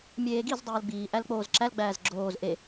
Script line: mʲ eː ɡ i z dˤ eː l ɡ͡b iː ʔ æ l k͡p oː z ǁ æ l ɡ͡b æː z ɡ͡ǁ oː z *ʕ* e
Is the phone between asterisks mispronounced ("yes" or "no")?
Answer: yes